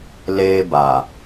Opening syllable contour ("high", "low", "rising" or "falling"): high